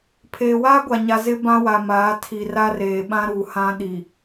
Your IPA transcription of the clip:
pʰeː˨waː˦ɡʷa˨ɲa˨ zɪ˦ bã˦wa˨maː˨˦ tʰi˨ ra˦reː˨ɓã˦ ɾu˨hã˦ ɗi˨

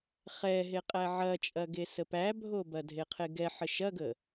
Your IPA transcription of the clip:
χɛɦeqʼæ ʕɐt͡ʃʼɐɡe səpæbʱobɐ dʱeqʰeɡɛħə ʃɐɡə

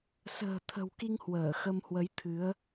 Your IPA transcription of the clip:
sə̤ː˨˩ t̪ʰə̤˨˩wki˧ŋ hwəː˧˩ xə˧mhwə˨˦jt̪ʰɨ˨˦ə̯

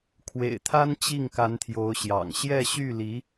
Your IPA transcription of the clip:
kʰwḛ˨˩ɪ̯t̪ʰa˥n t͡ɕi˥˩ŋka˧˥nt̪ʰjo˧˥ʊ̯ɕjɑ̰˨˩ŋ ɕjɛ˥˧ɕy˥˩li˧˥

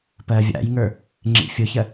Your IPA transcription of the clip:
pɜvʲa̰jŋə˞ | ŋ͡ǁḭfʲʊçɜ

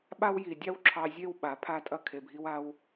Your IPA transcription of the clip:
ɓa˦wji˨dʲɑ˦w ǁʰɑ˧zʲe˦w ɓa˨˦pʰa˦tʼɐ˦ kʰe˨bʱi˧wa˧w

